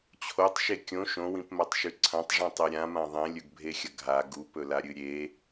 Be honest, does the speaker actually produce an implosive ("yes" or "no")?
no